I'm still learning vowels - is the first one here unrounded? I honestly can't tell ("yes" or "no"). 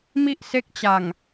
yes